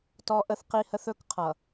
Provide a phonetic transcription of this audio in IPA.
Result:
t ɔ˦ ʔ ə˦ θ q i˦ h ə˦ θ ɵ˦ k qʰ ʌ˨

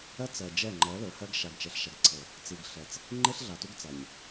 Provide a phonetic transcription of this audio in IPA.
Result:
ɜ˦ t͡s ɜ˨ d͡ʒ ɛ˦˨ ŋ͡ǃ ɜ˨˦ l ɵ˨ h ɜ˦ ɡ ʃ a˨ ɡ t͡ʃ ɛ˨ ɬ ʃ a˨ ɡ ǀʰ ɤ˨ | t͡s i˨ ɡ ɬ ɛ˨ t͡s | ŋ͡ǃ e˦ ɬ ɮ a˨ t u˦ ɡ t͡s a˨ ɲ

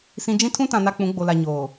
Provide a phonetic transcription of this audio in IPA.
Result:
s ĩ˨ d͡ʒ ĩ˦ tʰ ũ˦ t ã˨ n a˦ k͡p ũ˨˦ ɡ͡b o˨ l a˨ ɲ oː˨

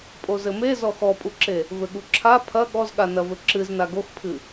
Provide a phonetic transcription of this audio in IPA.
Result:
pʼ o z ɘ m e z ɔ x ɔ pʼ u ǁ e | v ɘ ɠ u ǁʰ a pʰ ɐ ɠ ɔ z ɠ a n ɐ v ɘ ǁ ɨ z n a ɡ o x pʰ ɨ

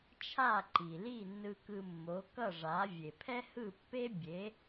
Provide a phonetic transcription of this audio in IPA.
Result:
t͡ʃʰ a˥˩ ǃ i˩ l i˥˩ nː ɯ˧ k ɯ˧ mː o˩˥ k ʌ˥˩ ʐ a˩˥ vʲ e˩ pʰ ɛ˥ h ɯ˥˩ pː e˥ bʲ e˩˥

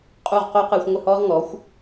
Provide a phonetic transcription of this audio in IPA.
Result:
qʼ u˥˩ ʁ q o˥ q ɨː˧ xʷ ŋʷ ɘ˥˩ h ɔː˥ ʁ ŋ ɔ˩˥ xʷ

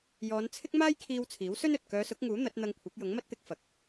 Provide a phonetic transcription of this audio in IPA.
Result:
j ɔː˨˧ n t͡sʰ ɪ˥ k̚ m aː˥ j kʰ iː˧ w t͡sʰ iː˨˥ w s ɵ˥ n ɵ˨ t̚ k œː˨˧ s ʊ˨˥ k̚ ŋ uː˨˥ n̪ ɐ˨˥ t̚ n̪ ɐ˧ ŋ kʷʰ ɐ˨˥ k̚ j ʊ˨˥ ŋ m ɐ˥ t̚ t̪ ɪ˧ k̚ f ɐ˨ k̚

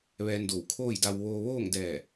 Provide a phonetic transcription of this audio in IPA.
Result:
ʋ ɛː˧ n d o˧˩ w kʰ oː˥˨ j d a˧ w ʋ oː˧ ʋ oː˥˨ ŋ d ɛː˧˩

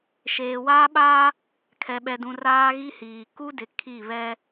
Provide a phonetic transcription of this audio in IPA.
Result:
ʃ eː˨ w aː˦ ɓ aː˦ | kʰ ɛ˨ ɓ ɛ˨ d ũ˨ r aː˦ ɣ i˦ h iː˨ k u˦ d ɪ˨ kʰ i˦˨ β ɛ˦

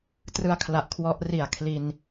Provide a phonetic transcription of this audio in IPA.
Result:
t r ɯ˦˥ a̯ kʰ l a˨˩ ʔ kʰ w ɔ˦˥ ʔ r i˨˩ a̯ kʰ l i˧ n

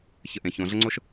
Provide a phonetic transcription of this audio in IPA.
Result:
ç ə˨ ʔ ẽ˩ ç õ˩ ɮ ə˦ ŋ͡ǀ o˦ ʃ

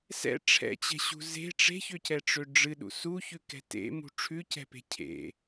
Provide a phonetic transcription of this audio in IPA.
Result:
s ɛ̰ ʈ͡ʂʰ ɛ̰ t͡ɕ ɛ̤ ɕ ṳ z e̤ ʈ͡ʂ e̤ ç ø c ɛ ʈ͡ʂ ø ɖ͡ʐ ɨ ɗ ṵ s u ç ʉ k ɛ̤ t ḛ m ṳ ʈ͡ʂʰ ʉ c ɛ̤ p e̤ cʰ ḛ

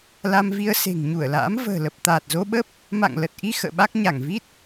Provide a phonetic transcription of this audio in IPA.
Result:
l a˧ m v i˧ ə̯ s e̤˨˩ ŋ ɲ u˧˩ ə̯ l a̰ː˧˥ m v ə̤ː˨˩ l ə˨˩ p̚ t̪ aː˨˩ t̚ z o˧ ɓ ə˦˥ p̚ | m a̰˧˨ ŋ l ə˨˩ t̚ ʔ i˧ x ə̰ː˧˨ ɓ a˦˥ k̚ ɲ a˧˩ ŋ v i˦˥ t̚

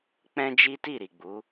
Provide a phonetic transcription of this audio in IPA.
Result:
k͡p ɛ̃˦ d͡ʒ i˦ t i˦˨ ɾ i˨ ɡ͡b u˨˦

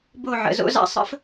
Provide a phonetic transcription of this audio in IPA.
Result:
b o˦˨ ʕ ə̰˨ z o̰˧ z a̰˧ sˤ ə̰˦ f

